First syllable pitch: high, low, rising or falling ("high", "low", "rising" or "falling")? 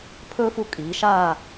high